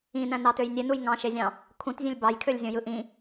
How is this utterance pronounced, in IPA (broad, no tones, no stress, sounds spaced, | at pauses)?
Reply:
ĩ n æ̃ n ɑ t ø j nʲ e n u j ŋ ɑ̃ ʃ e zʲ ɑ̃ | kʰ ũ t zʲ ẽ lʲ b ɑ j kʰ ø lʲ zʲ õ j ɯ ʔ ĩ